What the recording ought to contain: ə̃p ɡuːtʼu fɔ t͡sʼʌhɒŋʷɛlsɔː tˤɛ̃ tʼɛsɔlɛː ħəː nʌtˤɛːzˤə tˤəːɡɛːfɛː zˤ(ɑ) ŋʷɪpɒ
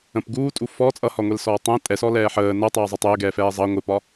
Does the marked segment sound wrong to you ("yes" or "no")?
no